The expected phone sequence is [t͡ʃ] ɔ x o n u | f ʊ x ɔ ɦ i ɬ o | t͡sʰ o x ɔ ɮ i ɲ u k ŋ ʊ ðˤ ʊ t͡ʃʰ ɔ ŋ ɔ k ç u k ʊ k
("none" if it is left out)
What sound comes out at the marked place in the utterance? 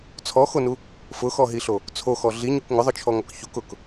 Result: t͡sʰ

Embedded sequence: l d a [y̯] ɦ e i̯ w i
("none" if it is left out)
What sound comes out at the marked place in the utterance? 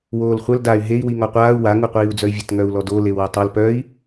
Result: y̯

